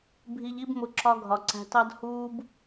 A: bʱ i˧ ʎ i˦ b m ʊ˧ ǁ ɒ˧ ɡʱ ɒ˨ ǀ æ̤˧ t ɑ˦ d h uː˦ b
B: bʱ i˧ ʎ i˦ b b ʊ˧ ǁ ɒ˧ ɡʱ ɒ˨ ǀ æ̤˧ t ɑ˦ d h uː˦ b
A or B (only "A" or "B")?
A